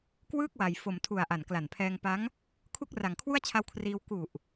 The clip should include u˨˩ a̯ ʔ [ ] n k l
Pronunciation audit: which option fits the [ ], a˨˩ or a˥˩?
a˨˩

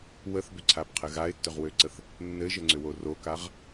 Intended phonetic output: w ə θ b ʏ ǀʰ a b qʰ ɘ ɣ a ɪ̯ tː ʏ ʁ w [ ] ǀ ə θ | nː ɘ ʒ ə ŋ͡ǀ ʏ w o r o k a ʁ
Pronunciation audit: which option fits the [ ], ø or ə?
ø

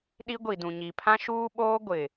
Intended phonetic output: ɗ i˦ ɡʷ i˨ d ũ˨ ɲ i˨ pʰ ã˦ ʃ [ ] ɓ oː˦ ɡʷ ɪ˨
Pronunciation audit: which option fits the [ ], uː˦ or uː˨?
uː˦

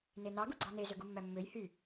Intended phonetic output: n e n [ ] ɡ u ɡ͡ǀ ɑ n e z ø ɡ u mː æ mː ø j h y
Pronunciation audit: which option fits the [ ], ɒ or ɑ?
ɑ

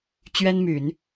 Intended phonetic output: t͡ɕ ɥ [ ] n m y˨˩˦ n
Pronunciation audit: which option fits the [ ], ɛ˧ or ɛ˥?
ɛ˥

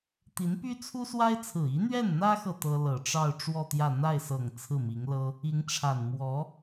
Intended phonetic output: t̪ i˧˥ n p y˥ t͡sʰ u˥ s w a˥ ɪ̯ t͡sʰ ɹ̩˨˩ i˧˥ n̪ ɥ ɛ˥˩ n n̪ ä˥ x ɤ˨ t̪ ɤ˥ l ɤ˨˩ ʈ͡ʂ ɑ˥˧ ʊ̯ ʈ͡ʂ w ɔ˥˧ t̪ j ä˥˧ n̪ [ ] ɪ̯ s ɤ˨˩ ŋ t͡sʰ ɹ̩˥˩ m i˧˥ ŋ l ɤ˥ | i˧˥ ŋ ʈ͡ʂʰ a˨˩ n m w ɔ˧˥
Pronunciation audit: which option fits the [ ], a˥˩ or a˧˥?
a˥˩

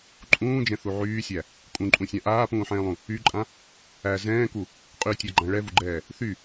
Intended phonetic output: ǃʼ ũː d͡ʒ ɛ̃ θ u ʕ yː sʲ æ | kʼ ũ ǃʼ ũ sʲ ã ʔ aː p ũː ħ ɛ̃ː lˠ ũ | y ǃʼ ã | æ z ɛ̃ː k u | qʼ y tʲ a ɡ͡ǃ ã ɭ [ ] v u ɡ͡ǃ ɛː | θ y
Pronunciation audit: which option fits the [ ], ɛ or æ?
ɛ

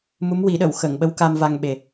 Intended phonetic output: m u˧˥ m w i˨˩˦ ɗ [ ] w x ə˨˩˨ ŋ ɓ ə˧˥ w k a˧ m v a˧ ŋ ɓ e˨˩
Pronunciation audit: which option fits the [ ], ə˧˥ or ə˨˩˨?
ə˨˩˨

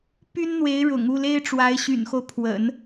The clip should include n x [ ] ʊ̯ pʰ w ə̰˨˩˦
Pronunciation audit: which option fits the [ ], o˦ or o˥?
o˦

